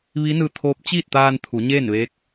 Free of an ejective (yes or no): yes